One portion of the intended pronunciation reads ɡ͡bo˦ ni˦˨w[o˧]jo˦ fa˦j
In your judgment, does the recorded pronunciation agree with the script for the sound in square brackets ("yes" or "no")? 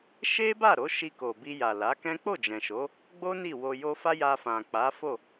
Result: yes